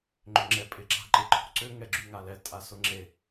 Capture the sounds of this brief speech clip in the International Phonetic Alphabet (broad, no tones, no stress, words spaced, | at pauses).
ŋ͡ǃʏŋ͡ǁɛpʼɪ ǁa̤ǃɪ ǃʰo̤ǀʏ ŋɛɡ͡ǁyŋalɛ tʼasʊŋ͡ǁe